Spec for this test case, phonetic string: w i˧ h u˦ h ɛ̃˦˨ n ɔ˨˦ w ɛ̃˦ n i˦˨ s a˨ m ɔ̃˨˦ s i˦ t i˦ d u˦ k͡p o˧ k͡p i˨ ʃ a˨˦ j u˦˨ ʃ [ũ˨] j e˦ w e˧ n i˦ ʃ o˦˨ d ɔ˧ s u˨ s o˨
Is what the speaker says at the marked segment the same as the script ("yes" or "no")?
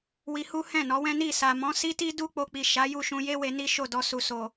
no